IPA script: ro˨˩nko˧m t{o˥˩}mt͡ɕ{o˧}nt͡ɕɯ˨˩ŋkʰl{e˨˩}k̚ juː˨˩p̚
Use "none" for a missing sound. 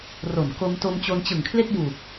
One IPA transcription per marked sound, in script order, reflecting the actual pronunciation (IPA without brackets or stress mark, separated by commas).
o˧, o˧, e˥˩